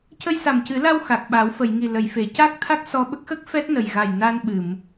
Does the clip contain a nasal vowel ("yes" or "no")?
no